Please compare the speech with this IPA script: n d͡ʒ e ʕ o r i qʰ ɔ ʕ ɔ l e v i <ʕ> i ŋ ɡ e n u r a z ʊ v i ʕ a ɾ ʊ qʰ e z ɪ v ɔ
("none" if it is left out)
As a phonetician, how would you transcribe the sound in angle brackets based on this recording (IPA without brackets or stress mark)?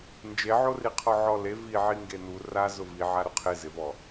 ʕ